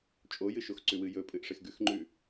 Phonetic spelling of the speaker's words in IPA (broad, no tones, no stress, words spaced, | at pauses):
t͡ʃʼojɨʃoxǀʉ wɨjɵpʼɨʔ ʂexɡʉxŋ͡ǃʉ